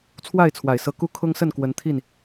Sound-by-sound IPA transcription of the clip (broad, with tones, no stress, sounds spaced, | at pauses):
t͡sʰ w a˥˨ ɪ̯ t͡sʰ w a˨˩ ɪ̯ s ɤ˨˦ k u˦ kʰ ʊ˦ ŋ s ə˥˨ n k w ə˨˦ n t̪ʰ i˥˨ n